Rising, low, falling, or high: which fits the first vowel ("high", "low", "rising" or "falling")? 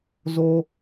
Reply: high